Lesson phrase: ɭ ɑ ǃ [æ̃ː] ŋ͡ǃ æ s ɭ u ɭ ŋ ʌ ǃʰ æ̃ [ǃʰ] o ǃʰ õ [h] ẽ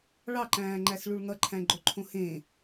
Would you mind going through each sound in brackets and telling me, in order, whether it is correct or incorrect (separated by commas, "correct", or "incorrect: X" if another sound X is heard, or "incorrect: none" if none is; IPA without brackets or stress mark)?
correct, incorrect: ɡ͡ǃ, correct